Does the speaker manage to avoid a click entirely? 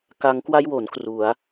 yes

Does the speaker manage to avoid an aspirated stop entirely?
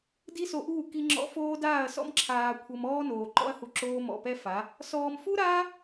no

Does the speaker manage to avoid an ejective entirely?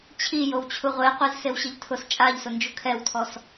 no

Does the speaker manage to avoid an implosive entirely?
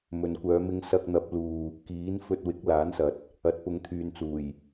yes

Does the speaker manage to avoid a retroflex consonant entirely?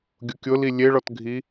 no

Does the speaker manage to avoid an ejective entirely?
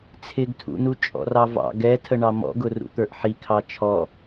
no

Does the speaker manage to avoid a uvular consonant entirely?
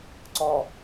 yes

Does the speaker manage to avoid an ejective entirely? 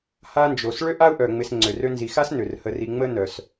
yes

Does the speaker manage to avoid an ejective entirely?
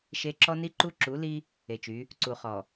yes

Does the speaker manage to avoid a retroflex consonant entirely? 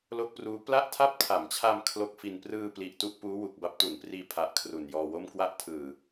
yes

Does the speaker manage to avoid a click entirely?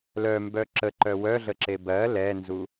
no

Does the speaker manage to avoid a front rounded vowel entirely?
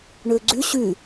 no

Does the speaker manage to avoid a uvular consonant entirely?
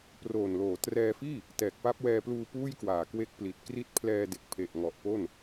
yes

